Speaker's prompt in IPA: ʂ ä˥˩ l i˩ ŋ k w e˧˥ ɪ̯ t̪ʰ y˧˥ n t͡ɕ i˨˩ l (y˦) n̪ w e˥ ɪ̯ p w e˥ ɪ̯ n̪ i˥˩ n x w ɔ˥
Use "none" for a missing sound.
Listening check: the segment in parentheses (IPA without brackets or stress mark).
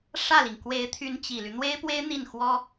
y˦